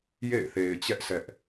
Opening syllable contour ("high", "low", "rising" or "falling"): falling